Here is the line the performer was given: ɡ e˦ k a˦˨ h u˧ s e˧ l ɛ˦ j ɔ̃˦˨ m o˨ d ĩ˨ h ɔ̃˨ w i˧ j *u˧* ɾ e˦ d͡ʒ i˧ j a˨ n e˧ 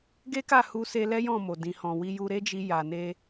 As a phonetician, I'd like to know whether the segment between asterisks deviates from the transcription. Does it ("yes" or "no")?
no